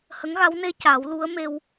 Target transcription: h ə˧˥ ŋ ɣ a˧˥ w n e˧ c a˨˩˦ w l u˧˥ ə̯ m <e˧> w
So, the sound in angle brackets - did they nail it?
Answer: yes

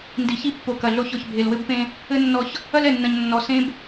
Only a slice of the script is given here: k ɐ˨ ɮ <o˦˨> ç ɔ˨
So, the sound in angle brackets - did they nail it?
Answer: yes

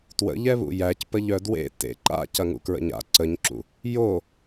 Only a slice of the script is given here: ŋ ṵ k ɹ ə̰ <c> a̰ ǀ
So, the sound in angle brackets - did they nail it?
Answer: no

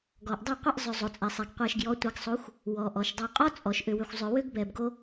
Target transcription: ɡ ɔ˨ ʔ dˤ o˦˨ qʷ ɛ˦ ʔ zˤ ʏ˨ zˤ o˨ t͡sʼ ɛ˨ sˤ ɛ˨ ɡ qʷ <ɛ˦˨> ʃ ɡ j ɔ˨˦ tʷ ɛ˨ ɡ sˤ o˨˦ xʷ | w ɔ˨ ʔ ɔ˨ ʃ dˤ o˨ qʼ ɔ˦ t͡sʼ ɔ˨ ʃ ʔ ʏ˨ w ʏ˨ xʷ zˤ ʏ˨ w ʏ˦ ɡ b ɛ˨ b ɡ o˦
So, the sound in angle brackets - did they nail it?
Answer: no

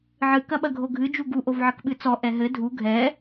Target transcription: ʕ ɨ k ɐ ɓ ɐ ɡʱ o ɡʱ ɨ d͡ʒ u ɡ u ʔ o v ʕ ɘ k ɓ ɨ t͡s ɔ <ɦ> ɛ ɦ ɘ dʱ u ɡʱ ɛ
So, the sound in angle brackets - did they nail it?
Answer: no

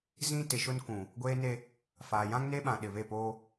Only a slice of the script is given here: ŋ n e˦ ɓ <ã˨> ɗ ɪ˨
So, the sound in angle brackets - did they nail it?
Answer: yes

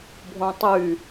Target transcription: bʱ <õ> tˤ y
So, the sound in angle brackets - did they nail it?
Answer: yes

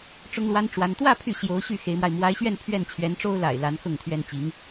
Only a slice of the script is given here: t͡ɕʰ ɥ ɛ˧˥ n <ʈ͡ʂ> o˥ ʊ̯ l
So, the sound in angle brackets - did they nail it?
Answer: yes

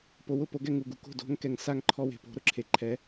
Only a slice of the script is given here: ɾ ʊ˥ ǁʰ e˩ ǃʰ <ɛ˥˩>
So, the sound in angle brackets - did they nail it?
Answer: no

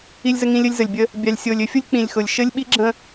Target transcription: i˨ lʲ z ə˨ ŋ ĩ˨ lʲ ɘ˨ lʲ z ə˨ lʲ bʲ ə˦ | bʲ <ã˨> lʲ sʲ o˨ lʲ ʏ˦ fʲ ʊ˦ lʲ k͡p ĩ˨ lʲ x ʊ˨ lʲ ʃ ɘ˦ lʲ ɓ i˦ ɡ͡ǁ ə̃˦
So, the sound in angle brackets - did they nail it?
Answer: no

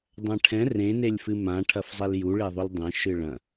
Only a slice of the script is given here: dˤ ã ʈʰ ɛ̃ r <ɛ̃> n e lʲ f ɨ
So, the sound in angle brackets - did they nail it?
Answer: no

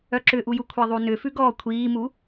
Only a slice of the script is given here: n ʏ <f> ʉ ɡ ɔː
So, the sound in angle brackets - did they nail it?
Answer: yes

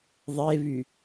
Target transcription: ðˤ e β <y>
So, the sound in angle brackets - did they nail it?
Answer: yes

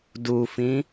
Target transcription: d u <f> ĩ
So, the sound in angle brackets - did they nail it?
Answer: yes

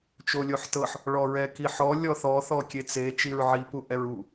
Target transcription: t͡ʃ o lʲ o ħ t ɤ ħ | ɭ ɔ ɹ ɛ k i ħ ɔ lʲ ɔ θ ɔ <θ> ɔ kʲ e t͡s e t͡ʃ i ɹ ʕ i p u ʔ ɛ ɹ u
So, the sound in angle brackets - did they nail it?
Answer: yes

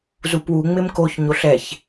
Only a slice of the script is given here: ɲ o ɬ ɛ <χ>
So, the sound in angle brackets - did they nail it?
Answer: no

